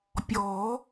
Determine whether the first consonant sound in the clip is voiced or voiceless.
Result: voiceless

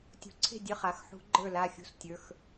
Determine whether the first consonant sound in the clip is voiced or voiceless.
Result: voiceless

